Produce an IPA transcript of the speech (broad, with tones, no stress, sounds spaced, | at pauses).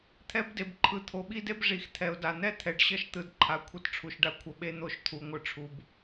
t̪ʰ ɛ˦ b d e˨ b ǃʰ ɯ˨ t̪ʰ o˨ ɓ i˦ d e˦ b ʐ i˨ x t̪ʰ ɛ˨ ʊ̯ d a˨ n̪ ɛ˦ t̪ʰ ɛ˨ ɖ ɕ ʌ˦ ʃ t̪ ɯ˨ d ǃʰ a˨ kʷʰ ʌ˦ t ʈ͡ʂʰ u˨ ʃ ɖ a˦ kʷʰ ʌ˨ ɓ e˦ n̪ o˦˨ ʃ t̪ʰ u˨ ŋʷ ɯ˨ ʈ͡ʂʰ u˨ b